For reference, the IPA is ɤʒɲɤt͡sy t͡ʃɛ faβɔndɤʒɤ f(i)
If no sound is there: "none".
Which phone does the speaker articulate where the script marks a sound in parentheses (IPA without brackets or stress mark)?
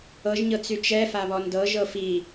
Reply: i